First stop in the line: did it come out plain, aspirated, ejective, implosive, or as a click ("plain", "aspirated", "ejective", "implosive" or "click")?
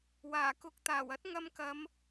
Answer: plain